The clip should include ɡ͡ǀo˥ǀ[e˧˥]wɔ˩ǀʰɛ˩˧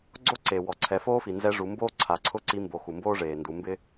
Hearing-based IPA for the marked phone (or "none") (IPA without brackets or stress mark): e˩